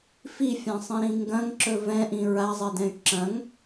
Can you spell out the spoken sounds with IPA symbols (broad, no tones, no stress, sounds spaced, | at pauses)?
f i fʲ ã sˤ ĩ ɾ ĩ ŋ ɡ ɐ̃ ŋ ǁ ɵ v ɛ̃ ʔ ĩ ɹ a zˤ ɛ d ɛ̃ y̯ ǁ ɐ̃ ŋ